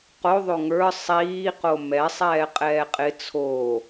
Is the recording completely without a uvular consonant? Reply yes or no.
no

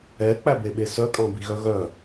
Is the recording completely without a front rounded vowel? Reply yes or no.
no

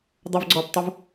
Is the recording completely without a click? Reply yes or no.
no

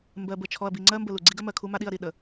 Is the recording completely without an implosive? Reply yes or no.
no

